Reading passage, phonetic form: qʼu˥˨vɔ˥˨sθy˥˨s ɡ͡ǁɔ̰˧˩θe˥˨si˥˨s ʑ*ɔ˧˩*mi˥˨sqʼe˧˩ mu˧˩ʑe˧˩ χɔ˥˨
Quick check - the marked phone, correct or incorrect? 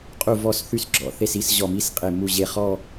correct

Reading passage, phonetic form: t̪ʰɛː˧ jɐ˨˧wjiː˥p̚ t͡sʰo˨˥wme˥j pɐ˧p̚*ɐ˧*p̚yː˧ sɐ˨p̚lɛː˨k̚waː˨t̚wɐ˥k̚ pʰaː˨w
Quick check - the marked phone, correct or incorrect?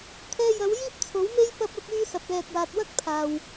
correct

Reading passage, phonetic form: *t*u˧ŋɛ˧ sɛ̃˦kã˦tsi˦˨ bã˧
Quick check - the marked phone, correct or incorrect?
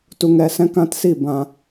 correct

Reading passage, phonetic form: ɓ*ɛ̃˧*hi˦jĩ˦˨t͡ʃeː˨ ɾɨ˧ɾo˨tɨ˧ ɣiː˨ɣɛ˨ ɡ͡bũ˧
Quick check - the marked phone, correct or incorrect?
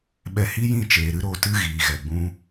incorrect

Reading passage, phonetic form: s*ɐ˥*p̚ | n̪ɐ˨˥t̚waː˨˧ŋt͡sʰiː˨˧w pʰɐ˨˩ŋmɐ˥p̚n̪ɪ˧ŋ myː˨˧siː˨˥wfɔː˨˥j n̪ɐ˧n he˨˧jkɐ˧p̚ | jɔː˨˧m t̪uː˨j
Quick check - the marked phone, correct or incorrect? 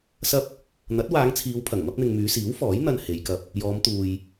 correct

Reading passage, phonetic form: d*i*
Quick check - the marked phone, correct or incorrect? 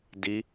correct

